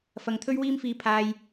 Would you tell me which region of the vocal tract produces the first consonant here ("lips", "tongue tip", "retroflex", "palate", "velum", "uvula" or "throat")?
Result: lips